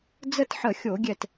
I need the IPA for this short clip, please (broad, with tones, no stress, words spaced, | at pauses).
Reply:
d͡zə˥˧tħə˧˩˧xʲo˧˩˧ɡʲɛ˧˩t